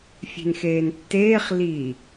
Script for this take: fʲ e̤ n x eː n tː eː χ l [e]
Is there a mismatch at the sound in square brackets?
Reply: yes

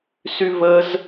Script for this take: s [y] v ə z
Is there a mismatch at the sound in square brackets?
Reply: no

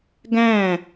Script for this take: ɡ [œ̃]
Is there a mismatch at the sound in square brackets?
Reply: yes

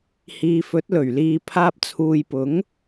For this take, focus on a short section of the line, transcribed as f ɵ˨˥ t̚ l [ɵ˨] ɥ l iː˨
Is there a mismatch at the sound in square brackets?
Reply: yes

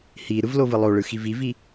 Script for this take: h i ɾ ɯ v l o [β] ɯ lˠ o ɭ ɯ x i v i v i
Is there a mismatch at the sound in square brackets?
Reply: yes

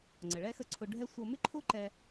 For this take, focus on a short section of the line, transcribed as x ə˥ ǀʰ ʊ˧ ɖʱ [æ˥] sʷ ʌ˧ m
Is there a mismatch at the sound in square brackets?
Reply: yes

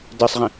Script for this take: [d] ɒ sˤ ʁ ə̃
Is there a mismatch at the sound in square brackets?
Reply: no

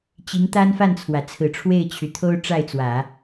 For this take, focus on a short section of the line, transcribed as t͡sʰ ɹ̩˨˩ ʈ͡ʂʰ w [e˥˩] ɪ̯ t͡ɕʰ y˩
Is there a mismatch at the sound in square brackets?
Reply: no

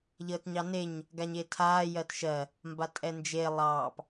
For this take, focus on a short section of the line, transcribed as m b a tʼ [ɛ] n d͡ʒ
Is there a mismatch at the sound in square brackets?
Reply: no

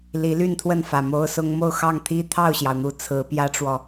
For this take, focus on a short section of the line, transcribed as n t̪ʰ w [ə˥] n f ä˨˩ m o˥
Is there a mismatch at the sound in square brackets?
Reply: yes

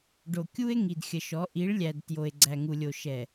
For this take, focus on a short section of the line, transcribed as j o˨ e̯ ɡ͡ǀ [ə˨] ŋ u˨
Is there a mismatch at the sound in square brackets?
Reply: yes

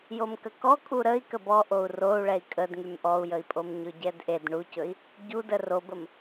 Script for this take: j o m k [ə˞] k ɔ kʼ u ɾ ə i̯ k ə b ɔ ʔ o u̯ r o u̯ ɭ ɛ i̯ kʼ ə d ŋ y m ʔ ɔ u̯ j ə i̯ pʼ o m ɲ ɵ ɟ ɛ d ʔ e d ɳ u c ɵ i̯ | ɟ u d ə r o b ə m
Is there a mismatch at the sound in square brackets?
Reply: yes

